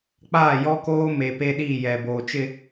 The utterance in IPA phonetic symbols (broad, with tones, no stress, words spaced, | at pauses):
k͡paː˦˨jɔ˦koː˦me˨ pe˦ɗi˦˨jɛ˨ boː˨t͡ʃɪ˦